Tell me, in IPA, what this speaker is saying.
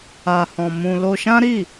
a˧ h ɔ̃˧ m ũ˧ l o˧ ʃ ã˦ ɾ i˦˨

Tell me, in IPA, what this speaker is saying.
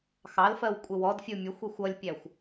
x ɑ l f ɜ w kʷʼ ɪ w ɔ d fʲ u mʲ ə xʷ i xʷ ʌ lʲ pʲ æ xʷ

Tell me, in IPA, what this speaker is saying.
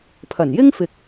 pʰ ɐ˨˩ n j ɪ˥ ŋ f ɪ˨ k̚

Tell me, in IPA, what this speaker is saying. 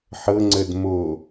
ħ ɤ ŋ͡ǀ ə d m o

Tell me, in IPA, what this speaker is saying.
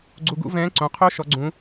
ɡ͡ǀ u˧ ɡ ṵ˧˥ v ɛ̃ː˧˥ ǀ õ˩˧ qʰ o˧˥ ʃ ɔ˧˥ ɡ͡ǀ ũ˧˥

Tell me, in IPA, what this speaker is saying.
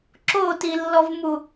ǁ o t i lː ɔ v m u

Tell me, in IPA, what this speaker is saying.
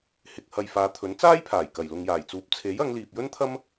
h ɪ˨ k̚ h ɐ˨ j f aː˨˧ t̪ʰ ɵ˨˥ n t͡s aː˥ j pʰ aː˨˩ j k ɐ˨˩ j l ʊ˨ ŋ j aː˨˩ j t͡s uː˨˥ p̚ t͡sʰ e˨˥ j ɐ˨˧ ŋ l iː˨ p̚ j ɵ˥ n t̪ʰ ɐ˥ m

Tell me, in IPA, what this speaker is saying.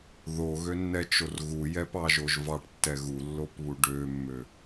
ð o ɣ ø nː ɛ t͡ʃ o r ɣ u j ɛ p ɑ ʒ o ʒ v ɑ ʈ tː ɛ ɣ u lː o p β u ɖ ø mː ø

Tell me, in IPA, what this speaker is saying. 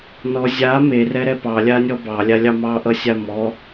n ɔ zʲ a m e r ɛ ɾ ɛ p ɑ lʲ a nʲ ɔ b ɑ lʲ a lʲ ɑ m ɑ ʔ ʌ sʲ a m ɔ

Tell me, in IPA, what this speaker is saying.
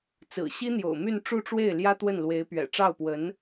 t͡s ɹ̩˨˩ ɕ i˥ n̪ j o̰˨˩ ʊ̯ m y˥˧ n ʈ͡ʂ u˥˧ ʈ͡ʂ w e˥˩ ɪ̯ l j ä˥ t̪ w ə˥˩ n l w e˧˥ ɪ̯ p ɥ ɛ̰˨˩ ʈ͡ʂ ɑ˥˩ ʊ̯ p w ə˧˥ n

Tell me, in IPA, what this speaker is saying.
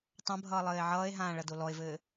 tˤ ɐ̃ bʱ ʌː lˠ ɘː e̯ ʕ ʌː e̯ ɦ ãː ɭ ɐ d o l ɔ e̯ v ɘː

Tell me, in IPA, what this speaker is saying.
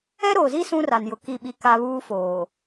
ɛ˦ ɾ oː˨ z i˦ s ũ˦ r a˨ n j ʊ˨ k i˦˨ ɓ i˦ k a˦ β uː˦ f oː˨

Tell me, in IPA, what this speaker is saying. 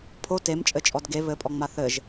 pʰ o t e m t͡ʃʼ ɘ t͡ʃʼ ɔ d ɡ e β ɘ pʼ ɔ ŋ͡m a θ ɘ ʒ

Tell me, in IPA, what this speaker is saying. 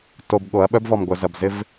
t o˨ b ɠ o˨˦ ɐ̯ ɓ œ˦ b v ɔ˨ m ɡʷ œ˨ z ɐ˨ b z ɪ˦ v

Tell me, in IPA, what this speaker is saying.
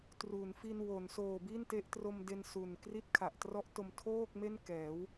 t r u˩˦ n f i˧ n w o˩˦ n s oː˨˩ b i˥˩ n t e˦˥ ʔ t r o˧ m d e˧ n s u˨˩ n k r i˥˩ t̚ kʰ a˨˩ ʔ t r ɔ˦˥ ʔ t o˧ m tʰ oː˥˩ k̚ m e˥˩ n k ɛː˩˦ w

